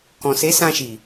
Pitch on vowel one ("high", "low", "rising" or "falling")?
low